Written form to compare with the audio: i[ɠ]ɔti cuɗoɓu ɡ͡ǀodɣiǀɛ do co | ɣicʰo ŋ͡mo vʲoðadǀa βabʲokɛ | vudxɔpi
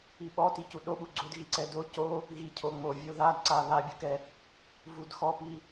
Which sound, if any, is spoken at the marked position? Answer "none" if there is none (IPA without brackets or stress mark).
ɓ